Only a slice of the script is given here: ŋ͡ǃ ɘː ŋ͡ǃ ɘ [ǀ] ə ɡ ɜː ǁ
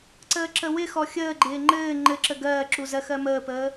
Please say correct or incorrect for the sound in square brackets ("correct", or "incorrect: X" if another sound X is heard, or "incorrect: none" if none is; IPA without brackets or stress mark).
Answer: incorrect: ǁ